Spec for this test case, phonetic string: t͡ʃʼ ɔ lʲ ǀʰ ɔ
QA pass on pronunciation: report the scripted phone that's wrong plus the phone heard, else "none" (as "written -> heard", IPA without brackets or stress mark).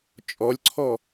none